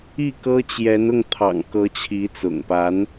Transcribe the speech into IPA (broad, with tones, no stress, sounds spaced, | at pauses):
i˥˩ k ɤ˥ t͡ɕ j ɛ˧˥ n ʊ˥˩ ŋ t̪ʰ ɑ̰˨˩ ŋ k ɤ˧˥ t͡ɕʰ i˧˥ t͡s ʊ̰˨˩ ŋ p a˧˥ n